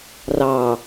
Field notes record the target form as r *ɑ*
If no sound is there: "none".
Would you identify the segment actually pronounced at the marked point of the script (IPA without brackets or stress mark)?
ɑ